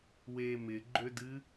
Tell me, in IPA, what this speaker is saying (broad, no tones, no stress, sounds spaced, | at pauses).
w e m ɪ ɡ͡ǃ ø d ɨ